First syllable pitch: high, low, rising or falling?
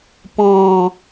low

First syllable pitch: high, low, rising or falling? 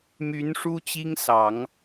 rising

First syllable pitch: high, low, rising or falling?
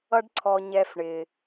high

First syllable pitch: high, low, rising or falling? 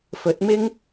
rising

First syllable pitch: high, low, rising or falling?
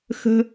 low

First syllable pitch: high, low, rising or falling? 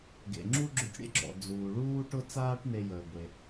low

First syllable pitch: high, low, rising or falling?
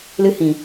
high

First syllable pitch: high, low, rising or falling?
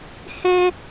high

